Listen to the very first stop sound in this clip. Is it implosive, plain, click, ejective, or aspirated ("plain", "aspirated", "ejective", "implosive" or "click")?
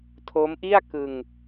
aspirated